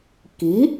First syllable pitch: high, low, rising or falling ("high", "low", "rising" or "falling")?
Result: rising